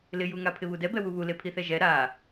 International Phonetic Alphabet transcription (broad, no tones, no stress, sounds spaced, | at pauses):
l ɪ j u ŋ a pʰ ɪ β u d ɛ b ɛ w u β u l e pʰ i θ ɛ ʒ ɛ ɾ a